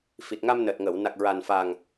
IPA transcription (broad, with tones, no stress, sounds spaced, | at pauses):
f i˨˩ t̚ ŋ a˧ m n əː˨˩ t̚ ŋ əː˨˩˨ w n a˨˩ k̚ ɹ a˨˩ n f a˨˩ ŋ